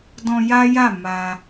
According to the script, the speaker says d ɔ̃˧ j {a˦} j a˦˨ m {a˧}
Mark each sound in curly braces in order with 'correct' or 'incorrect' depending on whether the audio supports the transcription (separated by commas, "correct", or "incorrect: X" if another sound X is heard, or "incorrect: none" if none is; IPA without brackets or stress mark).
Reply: correct, correct